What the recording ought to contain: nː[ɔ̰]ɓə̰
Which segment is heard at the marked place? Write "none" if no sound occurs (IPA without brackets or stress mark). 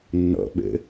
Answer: ɔ̰